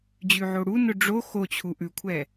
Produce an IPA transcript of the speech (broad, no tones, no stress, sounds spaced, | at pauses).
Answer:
d͡ʑ ʉ ʕ o ɽ u n ʊ ɖ͡ʐ o x o t͡ɕʰ u ʔ ʉ kʷʰ ɛ